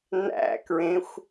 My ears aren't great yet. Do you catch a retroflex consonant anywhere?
no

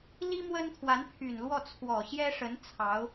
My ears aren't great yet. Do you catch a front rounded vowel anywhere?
yes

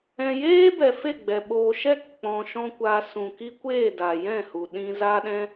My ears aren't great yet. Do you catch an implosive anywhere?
yes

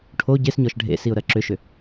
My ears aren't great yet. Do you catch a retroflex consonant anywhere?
yes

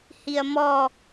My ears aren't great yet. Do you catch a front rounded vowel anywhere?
no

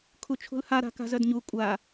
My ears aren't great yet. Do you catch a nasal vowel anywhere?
no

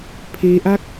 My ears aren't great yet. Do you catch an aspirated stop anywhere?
yes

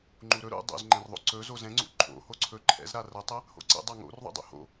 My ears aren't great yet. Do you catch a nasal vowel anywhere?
yes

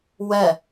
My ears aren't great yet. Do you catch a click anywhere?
no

